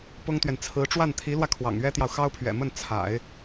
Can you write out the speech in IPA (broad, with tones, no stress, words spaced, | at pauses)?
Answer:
pʊ˥ŋt̪ɥɛ˨n t͡sʰɹ̩˧˥ ʈ͡ʂwa˥˩nt̪ʰi˧˥lwä˧ kʰwɑ̰˨˩ŋɥɛ˥t̪jɑ˨ʊ̯ xɑ˥ʊ̯pʰɥɛ̰˨˩mə˥˩n t͡sʰa̰˨˩˦ɪ̯